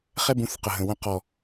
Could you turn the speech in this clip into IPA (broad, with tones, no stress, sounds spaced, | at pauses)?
χ ɛ˦ b ũ˨˦ θ q ə˨ ɦ ə̃˨ w ə̃˧ q ɔ˨